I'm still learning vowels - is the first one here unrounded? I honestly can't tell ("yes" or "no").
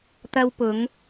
yes